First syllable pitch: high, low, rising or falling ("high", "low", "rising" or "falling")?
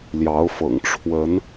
rising